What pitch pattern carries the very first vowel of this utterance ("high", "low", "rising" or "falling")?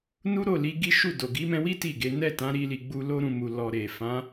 high